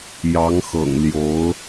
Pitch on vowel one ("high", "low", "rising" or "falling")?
rising